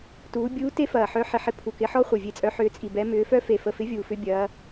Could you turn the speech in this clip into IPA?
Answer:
t uː˨˦ bʲ uː˦˥ t e˦˥ f ɐː˨˩ ħ œ˨˦ ħ ɪ˨˩ ħ ɪ˨˦ pʰ u˨˩ k ɪ˨˦ ħ ɔ˦˥ χʷ e˨˩ vʲ e˨˦ t͡sʼ œ˨˦ ħ ʏː˨˦ t͡sʼ i˨˩ b ɛ˨˦ m ʏː˨˦ f œ˦˥ f e˨˩ f ə˨˩ f ɪ˨˦ vʲ uː˨˩ f ʏ˦˥ bʲ ɐː˨˦

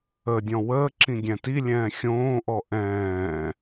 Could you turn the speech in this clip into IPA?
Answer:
ə dʲ ɔ̃ w əː ǁ ĩ ɡʲ ɛ̃ t i lʲ ɛ̃ː xʲ õː ʔ ɔ ʔ ɛ̃ː

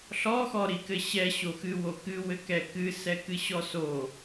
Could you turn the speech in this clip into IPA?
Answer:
ɬ ɔ x ɔ ɾ i k ɘ ɕ ɛ ɕ o x ɨ w o k ɨ w ɘ k ɛ k ɨ s ɛ k ɨ ɕ ɔ s o

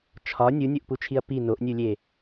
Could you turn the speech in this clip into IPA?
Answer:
t͡ʃʰ ɒ nʲ u nʲ o ʔ p u t͡ʃʰ i ɐ̯ p i n o ʔ nʲ u lʲ e

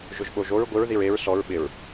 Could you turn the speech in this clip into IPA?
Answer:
ʒ ʊ ʒ ɓ o ʒ o ɹ ɡʷ ɪ ɹ ð i ɹ e ɹ s ɔ ɹ ɓ ɪ ɹ

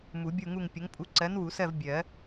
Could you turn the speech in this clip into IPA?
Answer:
m u˨˩˦ bʲ u˦˨ ŋ u˦˨ ŋ pʲ ə˨˥ ŋ pʼ u˨˥ ǀ ɜ˨˥ n w u˨˩˦ s ɜ˦˨ v bʲ ɜ˨˩˦

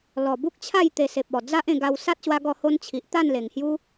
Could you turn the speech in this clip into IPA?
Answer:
l ɔ˨˩ b u˦ k̚ t͡ɕʰ a˥˧ j t̪ e˧ s e˨ p̚ ɔ˨˩ d͡z a˦ ʔ ẽ˧ ɡ a˧ w s a˦ t̚ ɕ w a˧ ɡ ɔ˧ h o˧ n t͡ɕʰ i˨ ʔ t̪ a˥˧ n l e˨˩ ŋ h j u˦

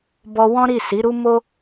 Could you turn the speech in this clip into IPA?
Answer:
b ɔ˧ w ɔ̃˦ ɾ i˦˨ s i˨˦ ɾ u˦ m o˦

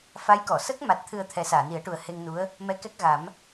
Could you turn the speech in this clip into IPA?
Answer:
f a˧˥ j k ɔ˨˩˨ s ə˦˥ k̚ m a˨˩ t̚ t̪ʰ ɨ˨˩ ə̯ t̪ʰ ɛ˨˩˦ s aː˨˩˨ n i˨˩˦ ə̯ ʈ u˨˩ ə̯ h e˧ ŋ n u˧˥ ə̯ | m ɛ˧˥ k ɛ˦˥ k̚ ɣ a˨˩˦ m

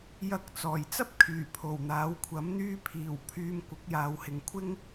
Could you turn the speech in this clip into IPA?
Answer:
j ɐ˨˥ k̚ t͡s ɔː˨˩ j t͡s ɐ˥ p̚ kʰ yː˨˩ pʰ o˨˩ w n̪ aː˨˥ w kʷʰ ɐ˨˥ m n̪ yː˧ pʰ iː˨˩ w pʰ yː˧ m kʷ ɪ˨˥ k̚ j aː˨˧ w h ɪ˨˧ ŋ kʷʰ ɪ˥ ŋ

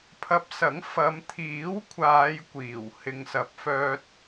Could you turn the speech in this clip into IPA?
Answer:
pʰ ɐ˧ p̚ s ɐ˨˥ ŋ f ɐ˨˧ m t̪ʰ iː˨˥ w kʷʰ aː˨˧ j kʷ iː˨˩ w h ɪ˨ ŋ s ɐ˨˥ p̚ f œː˧ t̚

